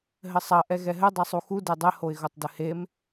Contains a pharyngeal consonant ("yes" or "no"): no